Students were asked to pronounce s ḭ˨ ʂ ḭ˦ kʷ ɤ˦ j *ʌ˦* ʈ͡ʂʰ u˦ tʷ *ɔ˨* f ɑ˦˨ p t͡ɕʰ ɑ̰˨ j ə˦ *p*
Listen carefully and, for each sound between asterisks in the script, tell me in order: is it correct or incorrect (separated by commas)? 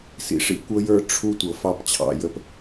incorrect, incorrect, correct